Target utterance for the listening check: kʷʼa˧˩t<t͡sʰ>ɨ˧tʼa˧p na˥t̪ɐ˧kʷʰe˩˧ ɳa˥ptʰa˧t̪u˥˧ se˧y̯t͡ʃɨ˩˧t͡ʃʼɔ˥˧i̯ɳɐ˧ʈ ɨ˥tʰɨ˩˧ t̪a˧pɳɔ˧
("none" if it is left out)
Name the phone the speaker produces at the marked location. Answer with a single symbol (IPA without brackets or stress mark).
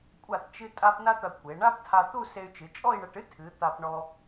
t͡ʃ